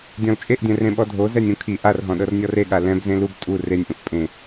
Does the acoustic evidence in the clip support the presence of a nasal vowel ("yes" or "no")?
yes